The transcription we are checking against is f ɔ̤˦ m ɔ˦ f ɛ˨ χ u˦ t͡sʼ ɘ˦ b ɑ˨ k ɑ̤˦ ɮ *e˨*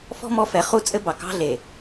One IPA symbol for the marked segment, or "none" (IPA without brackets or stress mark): e˨